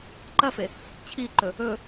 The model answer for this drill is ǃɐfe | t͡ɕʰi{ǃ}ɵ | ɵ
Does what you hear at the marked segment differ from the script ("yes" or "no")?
no